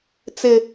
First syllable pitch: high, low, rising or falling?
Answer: high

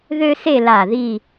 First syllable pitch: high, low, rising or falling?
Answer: high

